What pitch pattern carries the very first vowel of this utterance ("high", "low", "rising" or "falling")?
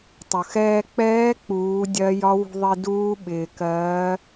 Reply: low